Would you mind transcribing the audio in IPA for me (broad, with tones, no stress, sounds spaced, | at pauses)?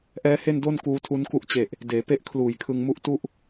ʔ ɛː˦˥ h e˥˩ n d o˥˩ n k uː˦˥ tʰ u˦˥ n k u˦˥ ʔ t͡ɕ e˨˩ ʔ | d eː˩˦ p e˥˩ ʔ kʰ l uː˨˩ j kʰ ɯ˧ ŋ m u˦˥ ʔ t u˥˩ ʔ